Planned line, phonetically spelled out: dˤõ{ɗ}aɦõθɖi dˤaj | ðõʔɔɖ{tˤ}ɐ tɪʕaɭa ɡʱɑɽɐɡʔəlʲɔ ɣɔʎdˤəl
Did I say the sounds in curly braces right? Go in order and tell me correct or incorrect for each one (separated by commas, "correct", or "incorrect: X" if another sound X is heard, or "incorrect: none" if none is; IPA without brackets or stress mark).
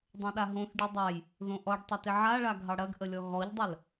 correct, correct